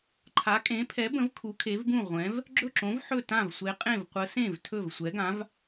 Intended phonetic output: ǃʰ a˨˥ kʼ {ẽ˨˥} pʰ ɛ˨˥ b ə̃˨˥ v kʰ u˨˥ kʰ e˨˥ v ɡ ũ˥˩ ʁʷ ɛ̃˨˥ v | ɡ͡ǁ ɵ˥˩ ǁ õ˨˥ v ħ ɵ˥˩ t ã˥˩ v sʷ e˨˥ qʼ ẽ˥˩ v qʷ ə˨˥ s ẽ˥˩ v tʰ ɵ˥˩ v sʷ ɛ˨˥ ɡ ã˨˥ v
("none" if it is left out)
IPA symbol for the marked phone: ẽ˨˥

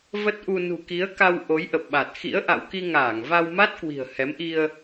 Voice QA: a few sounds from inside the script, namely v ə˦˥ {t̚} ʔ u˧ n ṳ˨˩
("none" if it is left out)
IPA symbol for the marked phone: t̚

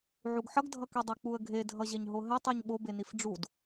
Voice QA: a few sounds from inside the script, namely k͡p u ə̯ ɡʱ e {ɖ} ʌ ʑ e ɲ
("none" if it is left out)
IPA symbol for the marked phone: dʱ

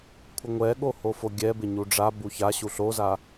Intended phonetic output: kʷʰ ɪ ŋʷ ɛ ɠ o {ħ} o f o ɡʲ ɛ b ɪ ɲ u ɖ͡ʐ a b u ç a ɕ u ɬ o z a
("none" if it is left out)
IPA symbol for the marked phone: h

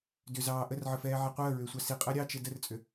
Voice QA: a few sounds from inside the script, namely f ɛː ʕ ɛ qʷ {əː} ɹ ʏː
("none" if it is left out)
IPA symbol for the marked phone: əː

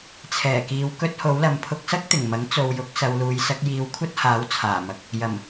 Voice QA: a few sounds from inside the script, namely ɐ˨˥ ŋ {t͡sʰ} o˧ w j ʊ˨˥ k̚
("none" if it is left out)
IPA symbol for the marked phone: t͡s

